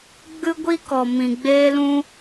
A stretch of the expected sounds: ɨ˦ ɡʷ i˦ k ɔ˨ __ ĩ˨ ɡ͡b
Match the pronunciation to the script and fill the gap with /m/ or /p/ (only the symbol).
m